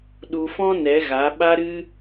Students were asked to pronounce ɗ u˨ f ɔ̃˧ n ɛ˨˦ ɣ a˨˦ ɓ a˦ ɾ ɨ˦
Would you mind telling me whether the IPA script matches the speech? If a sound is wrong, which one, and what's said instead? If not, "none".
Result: none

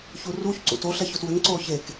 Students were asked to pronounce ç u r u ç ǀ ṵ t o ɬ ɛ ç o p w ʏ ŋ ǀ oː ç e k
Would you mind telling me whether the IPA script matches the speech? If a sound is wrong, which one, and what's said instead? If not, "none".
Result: p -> t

